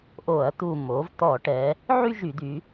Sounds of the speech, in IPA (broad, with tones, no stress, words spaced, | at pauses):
ʔo˧˩˧ɐ̯ t̪u˧˩mo˩˥v t̪ɔ˧˩˧ʈɛ˩˧ | ʕy˥˧ʒy˧˩˧d̪y˩˧